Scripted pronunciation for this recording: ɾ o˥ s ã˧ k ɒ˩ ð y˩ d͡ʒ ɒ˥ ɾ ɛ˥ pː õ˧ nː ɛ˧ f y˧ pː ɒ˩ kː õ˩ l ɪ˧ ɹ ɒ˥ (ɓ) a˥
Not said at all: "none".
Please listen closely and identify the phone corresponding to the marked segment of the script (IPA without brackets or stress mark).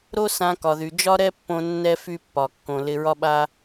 ɓ